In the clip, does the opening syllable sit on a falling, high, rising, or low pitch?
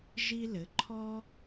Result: high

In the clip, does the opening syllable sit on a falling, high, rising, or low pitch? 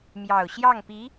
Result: low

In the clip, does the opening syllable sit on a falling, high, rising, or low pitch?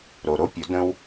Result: low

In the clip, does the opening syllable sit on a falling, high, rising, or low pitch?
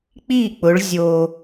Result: falling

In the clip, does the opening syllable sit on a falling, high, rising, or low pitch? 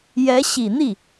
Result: rising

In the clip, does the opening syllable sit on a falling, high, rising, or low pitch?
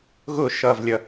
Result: falling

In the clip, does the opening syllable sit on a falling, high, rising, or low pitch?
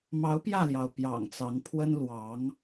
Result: rising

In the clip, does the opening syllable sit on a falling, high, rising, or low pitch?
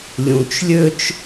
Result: low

